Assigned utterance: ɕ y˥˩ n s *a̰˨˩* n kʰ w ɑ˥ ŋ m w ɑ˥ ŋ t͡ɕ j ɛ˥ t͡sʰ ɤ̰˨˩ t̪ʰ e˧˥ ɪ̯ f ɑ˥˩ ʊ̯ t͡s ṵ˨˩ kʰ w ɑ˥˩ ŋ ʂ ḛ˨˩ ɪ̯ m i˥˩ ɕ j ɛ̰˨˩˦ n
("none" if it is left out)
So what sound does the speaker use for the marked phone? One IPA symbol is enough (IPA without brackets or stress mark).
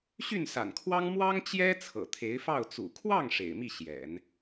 a̰˨˩